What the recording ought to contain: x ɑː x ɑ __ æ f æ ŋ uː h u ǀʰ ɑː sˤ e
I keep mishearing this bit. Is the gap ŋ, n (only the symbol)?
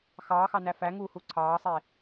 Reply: n